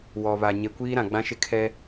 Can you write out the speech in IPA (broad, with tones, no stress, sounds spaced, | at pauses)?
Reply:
w ɔ˨ β a˨ ɲ e˨ kʷ iː˦ ɾ ã˨ ɡ͡b ã˦ ʃ ɪ˦˨ kʰ ɛ˦